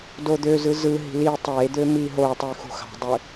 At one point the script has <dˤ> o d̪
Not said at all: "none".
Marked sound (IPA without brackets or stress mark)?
d